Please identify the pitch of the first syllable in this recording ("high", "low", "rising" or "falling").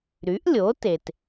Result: rising